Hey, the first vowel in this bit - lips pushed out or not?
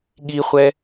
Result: no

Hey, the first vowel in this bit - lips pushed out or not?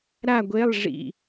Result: no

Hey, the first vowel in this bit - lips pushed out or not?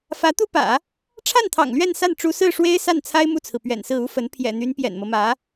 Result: no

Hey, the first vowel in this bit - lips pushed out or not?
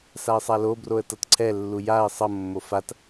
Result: no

